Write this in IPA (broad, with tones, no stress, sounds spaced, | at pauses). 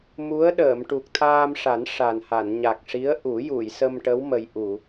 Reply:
m u˧˥ ə̯ ɗ əː˨˩˨ m ʈ u˨˩ k̚ t̪ʰ aː˧ m ʂ a˨˩˦ n ʂ a˨˩ n h a˨˩˨ n ɲ a˨˩ k̚ ʂ i˧˥ ə̯ ʔ u˨˩˦ j u˨˩˨ j s ə˧ m ʈ ə˧˥ w m ə˨˩ j ʔ u˨˩˨